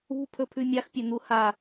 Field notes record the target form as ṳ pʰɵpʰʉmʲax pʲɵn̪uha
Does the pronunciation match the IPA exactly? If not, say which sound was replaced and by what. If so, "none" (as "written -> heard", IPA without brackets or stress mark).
none